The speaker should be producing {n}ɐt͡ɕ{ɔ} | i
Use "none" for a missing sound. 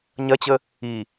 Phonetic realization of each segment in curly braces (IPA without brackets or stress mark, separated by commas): ɲ, ə